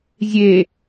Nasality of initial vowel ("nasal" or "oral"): oral